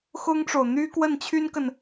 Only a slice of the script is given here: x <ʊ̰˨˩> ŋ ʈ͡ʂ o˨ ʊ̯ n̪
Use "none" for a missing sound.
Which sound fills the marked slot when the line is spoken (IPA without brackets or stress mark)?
ʊ˥